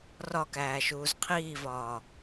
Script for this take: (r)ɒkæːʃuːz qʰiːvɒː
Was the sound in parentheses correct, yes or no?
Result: yes